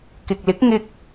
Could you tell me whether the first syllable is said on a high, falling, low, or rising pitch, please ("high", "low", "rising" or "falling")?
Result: low